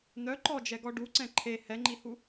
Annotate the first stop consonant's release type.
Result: click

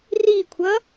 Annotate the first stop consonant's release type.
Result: aspirated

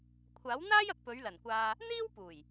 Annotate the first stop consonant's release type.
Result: aspirated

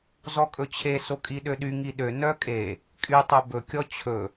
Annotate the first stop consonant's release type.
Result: ejective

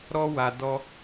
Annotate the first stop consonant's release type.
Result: plain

